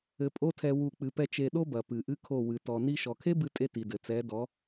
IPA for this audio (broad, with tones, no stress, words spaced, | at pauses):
ɘ˧pʼo˦tʰɛ˧ wu˦˨k͡pɨ˧pɛ˦ t͡ʃe˧ɗo˦bɐ˨ pɨ˨ʔɨ˦kʰo˦˨ wɨ˨tɔ˨ ni˧ʃɔ˨kʰe˦bɨ˧ tʼe˦ti˨dɘ˨ t͡sɛ˨˦dɔ˨˦